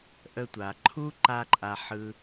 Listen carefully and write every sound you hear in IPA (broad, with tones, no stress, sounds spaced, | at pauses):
ʔ ə˧ tʷ a˩ ǃʰ u˥ ǃ a˥ ǃʼ a˧ ħ ɯ˧